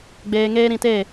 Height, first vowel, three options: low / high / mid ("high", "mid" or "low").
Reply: mid